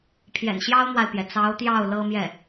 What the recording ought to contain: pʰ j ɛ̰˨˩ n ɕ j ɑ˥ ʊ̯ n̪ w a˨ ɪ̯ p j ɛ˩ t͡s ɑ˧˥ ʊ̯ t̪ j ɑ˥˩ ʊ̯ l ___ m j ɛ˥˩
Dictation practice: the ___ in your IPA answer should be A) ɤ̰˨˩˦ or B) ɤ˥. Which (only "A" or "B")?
B